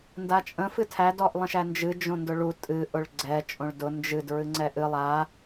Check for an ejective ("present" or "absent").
present